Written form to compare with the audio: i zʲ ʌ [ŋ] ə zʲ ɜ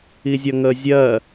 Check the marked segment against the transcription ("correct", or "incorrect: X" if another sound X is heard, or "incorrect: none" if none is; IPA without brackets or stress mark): correct